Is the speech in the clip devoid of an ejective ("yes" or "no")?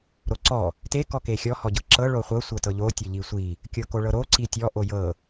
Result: yes